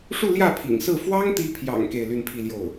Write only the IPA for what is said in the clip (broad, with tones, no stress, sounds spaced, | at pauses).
ʂ u˥˧ l j ä˥˩ pʰ ḭ˨˩ ŋ s ɹ̩˥˩ f w ɑ˥ ŋ t̪ i˧˥ pʰ j ɑ̰˨˩ ŋ k e˥˧ ɪ̯ l y˥˧ n pʰ i˥˧ l j o˥˩ ʊ̯